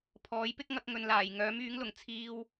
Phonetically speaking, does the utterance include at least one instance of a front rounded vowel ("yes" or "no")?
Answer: yes